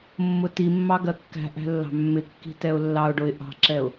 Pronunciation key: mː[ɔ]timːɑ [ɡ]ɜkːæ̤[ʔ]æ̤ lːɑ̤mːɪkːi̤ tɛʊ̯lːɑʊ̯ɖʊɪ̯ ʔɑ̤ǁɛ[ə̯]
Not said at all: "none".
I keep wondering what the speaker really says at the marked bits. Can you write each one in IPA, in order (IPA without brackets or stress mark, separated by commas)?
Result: ʊ, ɡ, ʔ, ʊ̯